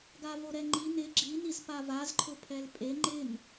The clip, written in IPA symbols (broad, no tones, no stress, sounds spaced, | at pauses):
ɡ a v o ɾ ɛ ŋ͡ǃ i n ɪ ɡ͡ǁ i n i z p a v a z ǃʰ ʊ pʰ ɛ l pʼ e ŋ͡ǃ ɪ n